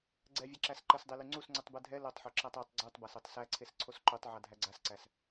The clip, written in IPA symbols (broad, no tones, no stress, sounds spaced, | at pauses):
ɡ͡ǀ ɛ vʲ ɛ ǁ æ s ǃ ə s dˤ e l y ŋ͡ǀ u s ŋ͡ǀ u tˤ b ɛ dʱ ɛ l o tˤ ħ o ǁ æ tˤ o tˤ ɡ͡ǀ u tˤ b a s ɛ tˤ s æ ǀʰ e s ǀʰ o s ǃ u tˤ ʕ a dʱ æ ɡ͡ǀ a s ǀ æ s